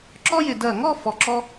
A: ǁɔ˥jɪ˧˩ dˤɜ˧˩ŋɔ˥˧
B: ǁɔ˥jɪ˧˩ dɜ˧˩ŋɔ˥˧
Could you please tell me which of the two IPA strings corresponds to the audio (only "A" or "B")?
B